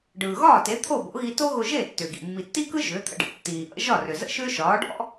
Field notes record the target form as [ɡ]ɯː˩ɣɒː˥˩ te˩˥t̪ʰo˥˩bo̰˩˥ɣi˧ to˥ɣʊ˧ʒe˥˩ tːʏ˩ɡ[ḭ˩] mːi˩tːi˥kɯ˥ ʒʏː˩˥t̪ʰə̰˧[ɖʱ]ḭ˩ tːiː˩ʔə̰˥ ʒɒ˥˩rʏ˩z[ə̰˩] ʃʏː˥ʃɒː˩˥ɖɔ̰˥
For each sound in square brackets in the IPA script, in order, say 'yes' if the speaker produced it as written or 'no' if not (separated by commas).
no, yes, no, no